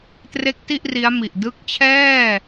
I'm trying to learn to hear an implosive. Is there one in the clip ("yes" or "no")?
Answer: no